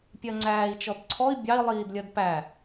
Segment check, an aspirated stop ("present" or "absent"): present